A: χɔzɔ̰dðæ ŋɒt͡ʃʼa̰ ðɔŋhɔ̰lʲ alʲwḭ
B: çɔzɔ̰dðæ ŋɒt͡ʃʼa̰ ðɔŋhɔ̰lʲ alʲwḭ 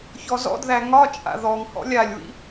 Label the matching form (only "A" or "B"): B